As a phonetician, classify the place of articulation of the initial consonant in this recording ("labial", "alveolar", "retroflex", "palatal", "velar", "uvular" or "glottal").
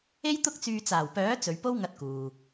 palatal